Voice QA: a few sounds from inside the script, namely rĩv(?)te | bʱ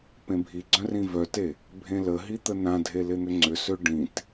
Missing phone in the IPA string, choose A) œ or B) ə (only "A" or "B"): A